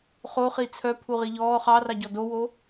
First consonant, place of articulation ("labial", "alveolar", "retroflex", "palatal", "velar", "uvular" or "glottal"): uvular